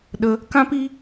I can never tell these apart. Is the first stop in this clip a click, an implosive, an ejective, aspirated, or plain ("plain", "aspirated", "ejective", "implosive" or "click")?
implosive